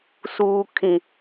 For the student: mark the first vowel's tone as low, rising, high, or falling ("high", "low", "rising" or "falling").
low